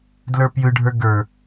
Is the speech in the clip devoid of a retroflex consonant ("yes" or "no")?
no